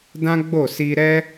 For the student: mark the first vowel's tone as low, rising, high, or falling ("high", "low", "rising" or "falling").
high